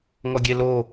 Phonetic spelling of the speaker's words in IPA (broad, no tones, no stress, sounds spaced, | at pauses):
ŋ ɔ ɡʲ e l o